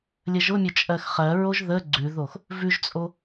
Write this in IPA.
lʲ ə ʒ ʊ mʲ ʊ t͡ʃʼ ɜ x χ ɜ ɹ o ʒ ð ə ɡ͡ǀ ʉ ð o x | v ʉ ʒ t͡sʼ o

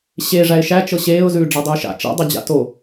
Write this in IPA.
ɕ e ʐ æ ɪ̯ ʃ æ t͡ʃ ɤ ɕ eː ʊ̯ z ʉː ɖ͡ʐ æ dˤ ʉː ʃ a̰ t͡ʃ a̰ dˤ ɤ d͡ʑ a̰ t o

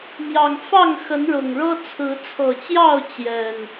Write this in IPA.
m j ɑ˨˩ ŋ f ɑ˥˨ ŋ x ə˨˦ n ɻ ʊ˨˩ ŋ ɻ ɤ˦ t͡sʰ ɹ̩˨˦ t͡sʰ ɤ˨˩ t͡ɕ j ɑ˥˨ ʊ̯ t͡ɕ j ɛ˨˩ n

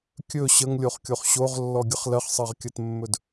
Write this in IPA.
kʲ ɵ ɕ ə ŋ lʲ o χ kʲ o χ ɕ o ʁ lː ɔ ɡʲ ə χ l ɜ χ sˤ ɜ ʁ kʲ ɜ t mː ɵ d

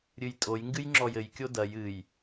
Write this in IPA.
ɾʲ ɨ j tʼ o j ŋ ɡ ɨ j ŋ͡ǁ ɔ j ɘ j kʲ o d ɐ j ɨ j

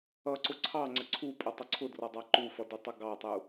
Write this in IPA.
ʌ ǀ ʊ ǀʰ ɑ ŋ͡ǀ ə ǀʰ u pʼ ə tˤ ʊ ǀʰ ʊ d r ɔ dˤ ɑ ǃ u f ʌ d u tˤ ʌ ɡ ɑ tˤ u

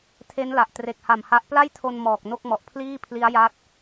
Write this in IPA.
tʰ e˦˥ n l a˨˩ ʔ t r e˨˩ k̚ h a˨˩ m h a˦˥ ʔ p l a˥˩ j tʰ o˧ n m ɔː˨˩ k̚ n o˥˩ k̚ m ɔ˨˩ ʔ pʰ l iː˥˩ pʰ l i˦˥ a̯ j a˦˥ t̚

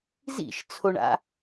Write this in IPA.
z ḭ ʃ t͡sʰ o ɳ a̰

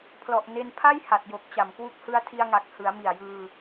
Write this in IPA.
pʰ l ɔ˨˩ ʔ n e˧ n pʰ a˥˩ j h a˨˩ t̚ j o˨˩ k̚ t͡ɕ a˨˩ m k w u˦˥ k̚ h ɯ˧ a̯ tʰ i˧ a̯ ŋ a˨˩ k̚ h ɯ˩˦ a̯ m i˨˩ a̯ j ɯː˧

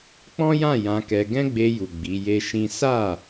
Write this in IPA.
k͡p ɔ̃˦ j ã˦˨ j ã˧ k ɛ˧ ɡ ɛ̃˦ ɡ͡b e˧ j u˨ ɡ͡b i˨˦ j e˦ ʃ ĩ˦ s a˦˨

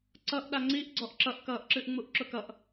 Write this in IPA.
ǀ ʌ ʔ ɗ a ŋ͡ǀ i ʔ ɡ͡ǀ ɔ ʔ ǁ ʌ ʔ k ʌː ʔ ǁ ɨ ʔ ŋ͡m u ʔ ǁ ʊ k ʌ ʔ

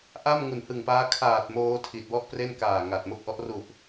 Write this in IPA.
ʔ a˥˩ m ŋ u˨˩ n h ɯ˨˩ ŋ p aː˦˥ kʰ aː˨˩ t̚ m oː˧ tʰ i˨˩ t̚ w ɔ˥˩ ʔ p r e˥˩ n k aː˨˩ ŋ a˨˩ t̚ m o˥˩ k̚ ʔ ɔ˦˥ ʔ r u˨˩ ʔ

